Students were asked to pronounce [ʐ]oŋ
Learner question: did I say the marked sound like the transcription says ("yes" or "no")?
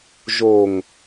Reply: no